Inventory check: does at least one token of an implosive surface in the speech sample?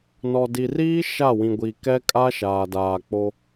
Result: no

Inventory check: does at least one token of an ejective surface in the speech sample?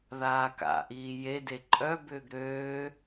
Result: yes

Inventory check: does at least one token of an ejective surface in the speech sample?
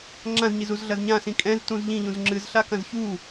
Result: yes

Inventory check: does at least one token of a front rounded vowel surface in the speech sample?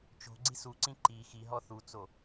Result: no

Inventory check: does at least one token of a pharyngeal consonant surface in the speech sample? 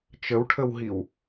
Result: no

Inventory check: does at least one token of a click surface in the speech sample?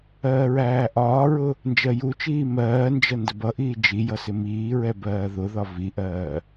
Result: no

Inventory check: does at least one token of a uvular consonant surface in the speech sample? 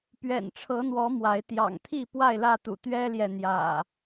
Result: no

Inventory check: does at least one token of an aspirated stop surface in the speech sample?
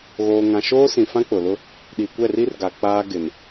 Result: no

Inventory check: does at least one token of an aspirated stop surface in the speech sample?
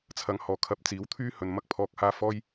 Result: yes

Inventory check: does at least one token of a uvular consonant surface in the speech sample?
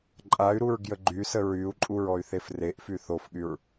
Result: no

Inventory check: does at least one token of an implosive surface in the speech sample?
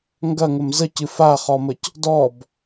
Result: no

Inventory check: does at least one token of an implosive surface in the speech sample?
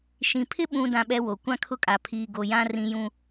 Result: yes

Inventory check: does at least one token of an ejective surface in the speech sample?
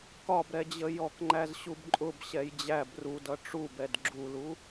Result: yes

